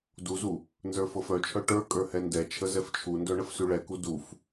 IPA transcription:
d u z u | n z ə˞ f ɤ f œ t͡ʃʰ œ ʈ ə˞ kʼ ə˞ h ɛ n d ɛ t͡ʃʰ ə z ɛ f t͡ʃʰ u n d œ ɳ ə f s ʉ ɭ ɛ k u d u f

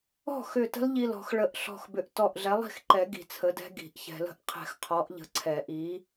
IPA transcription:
ɔ̤˥˩ x ʏ˧˩ t ə̤˦˥ l ʎ i˧˩ l ɔ̤˨˩˦ x ɭ ə˧˩ ʔ ɬ ɔ̤˧˩ x b ʏ˨˥ ʔ t ɔ˧˩ ʔ ɮ ɛ˨˥ lˠ i̤˥˩ x ǃ ɛ˨˩˦ ɡ i̤˧˩ t͡sʰ ə˨˥ d ɛ̤˦˥ ɡ i̤˨˩˦ ʔ ç ɛ̤˨˩˦ l ə̤˨˥ ʔ qʰ ɛ̤˧˩ x qʰ ɔ˨˥ ʔ ʎ ə̤˨˥ ǀʰ ɛ˨˩˦ ʔ i˨˥

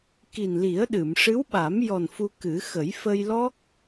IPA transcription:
k i˨˩ n l i˨˩˦ ə̯ ɗ ɨ˨˩˨ m ʂ ɨ˧˥ w ɓ a˨˩˦ m j ɔ˨˩ n f u˧ k ɨ˨˩˦ x ə˨˩˦ j f ə˧ j l ɔ˦˥ k̚

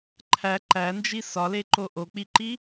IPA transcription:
ǃʰ æ ǃ æ n d͡ʒ i s ɒ l e ǃ o ʔ o k͡p i ǃ i

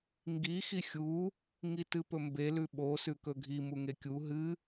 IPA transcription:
ŋ ɡ i x i xʲ u | ŋ i t ɨ p ɵ m b e l ʉ ɓ o s ʉ k ɵ ɡʱ i m u ŋ e kʲ u ɦ ɨ

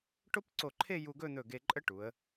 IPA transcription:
ʈ o˥ p ǀ o˧˩ ǃʰ e˥˧ j u˧ ɡ ɵ˥˧ n̪ ɵ˧˩ ɡ e˧ ǃʼ ə˥ ʈ u˩˧ ə̯

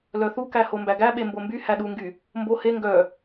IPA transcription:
l œ θ u k æ h o m b æ ɡ æ ɓ e m b o m b y h æ ɗ u ŋ ɡ y | m b o h e ŋ ɡ œ

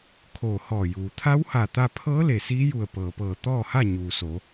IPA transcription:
kʰ oː˧˩ h ɔː˧˩ j uː˩ t̪ʰ a˧˥ w h a˧˩ t̪ a˧ pʰ ɤː˧˥ l e˧˩ s iː˧˥ j u˧˩ ə̯ p ɤː˩ p ɤː˧˩ t̪ ɔː˥˨ h a˥˨ ɲ uː˩ s o˩˧

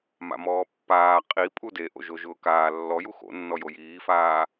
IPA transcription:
m a̰ m ɔː pː aː qʼ i pʼ u d e ʔ o̰ ʒ o ʒ ʊː k aː lː ɔ j u x o̰ nː ɔ j o j iː f aː

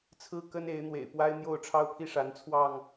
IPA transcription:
t͡sʰ ɹ̩˦ k ə˦ n e˨˦ ɪ̯ n̪ w ḛ˨˩ ɪ̯ p w a˦ ɪ̯ n̪ j o˥˨ ʊ̯ ʈ͡ʂʰ ɑ˦ ʊ̯ pʰ i˥˨ ʂ a˨˦ n t͡sʰ w ɑ˥˨ ŋ

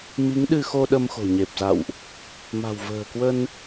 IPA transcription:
m i˨˦ ŋ ɗ ɨ˧ x o˧ ɗ ə˧ m x o̤˨˩ ɲ e˨˩ p̚ z a̰˧˨ w ʔ | m a̤˨˩ w v ə̤ː˨˩ k w ə˧ n

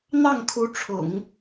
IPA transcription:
n̪ ɑ˥˩ ŋ kʰ u˧˥ ʈ͡ʂʰ ʊ̰˨˩˦ ŋ

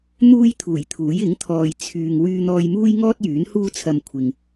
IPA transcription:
n̪ uː˥ j t̪ʰ uː˨˩ j t̪ʰ uː˨˥ j ɪ˨˥ ŋ t̪ʰ ɔː˨ j t͡sʰ yː˨ ŋ w yː˧ n̪ ɔː˧ j m uː˥ j ŋ ɔː˥ t̚ j yː˨˥ n h uː˥ t͡sʰ ɐ˧ m kʷʰ ɪ˨ ŋ

